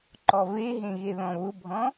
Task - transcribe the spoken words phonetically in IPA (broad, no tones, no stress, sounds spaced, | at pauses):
ǃ ɔ v e ɦ ẽ ɣ e ð ɔ̃ β ʊ bʱ ɔ̃